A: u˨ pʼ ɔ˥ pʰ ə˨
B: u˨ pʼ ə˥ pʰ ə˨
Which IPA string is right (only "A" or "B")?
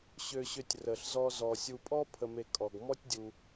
A